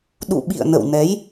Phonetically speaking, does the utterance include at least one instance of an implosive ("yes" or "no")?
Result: yes